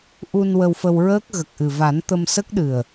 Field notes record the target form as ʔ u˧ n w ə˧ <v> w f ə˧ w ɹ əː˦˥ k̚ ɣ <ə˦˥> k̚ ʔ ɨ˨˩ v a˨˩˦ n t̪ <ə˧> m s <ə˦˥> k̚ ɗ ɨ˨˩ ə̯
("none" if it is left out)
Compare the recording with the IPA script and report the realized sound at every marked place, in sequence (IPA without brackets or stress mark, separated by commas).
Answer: none, ə˨˩, ə˧, ə˦˥